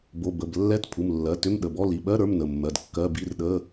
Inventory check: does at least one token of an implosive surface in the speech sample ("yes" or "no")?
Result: yes